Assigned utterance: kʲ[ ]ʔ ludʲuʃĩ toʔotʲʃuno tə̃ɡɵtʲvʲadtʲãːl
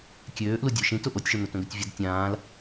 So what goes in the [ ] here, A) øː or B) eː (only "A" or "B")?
A